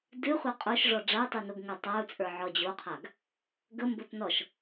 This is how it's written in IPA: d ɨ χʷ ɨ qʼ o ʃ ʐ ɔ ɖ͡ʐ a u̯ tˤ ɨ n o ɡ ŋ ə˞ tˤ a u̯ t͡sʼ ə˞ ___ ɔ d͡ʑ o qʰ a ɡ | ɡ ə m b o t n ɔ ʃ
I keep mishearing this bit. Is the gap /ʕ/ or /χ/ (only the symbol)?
ʕ